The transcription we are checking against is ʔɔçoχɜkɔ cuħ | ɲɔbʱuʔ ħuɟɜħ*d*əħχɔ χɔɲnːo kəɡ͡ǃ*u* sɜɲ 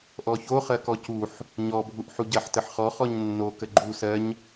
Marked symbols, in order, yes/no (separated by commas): no, yes